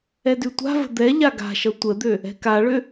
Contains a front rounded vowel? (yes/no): yes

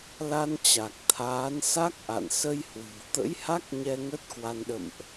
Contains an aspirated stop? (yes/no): yes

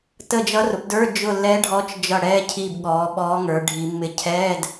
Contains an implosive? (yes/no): yes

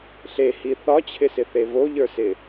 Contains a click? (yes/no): no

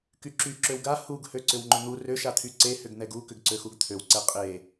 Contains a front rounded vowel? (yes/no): yes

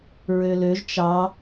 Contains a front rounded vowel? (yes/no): yes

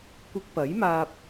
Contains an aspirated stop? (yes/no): no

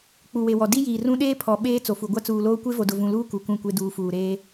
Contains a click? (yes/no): no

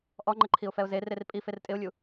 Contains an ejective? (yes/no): yes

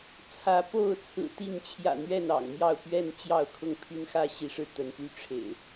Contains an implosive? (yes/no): no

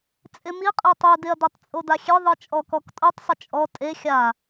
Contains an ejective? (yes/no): yes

